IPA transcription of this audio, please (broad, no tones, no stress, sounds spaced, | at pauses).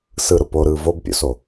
s ɯ ɾ ʊ p o ɾ ɯː v o b pʲ o̰ s o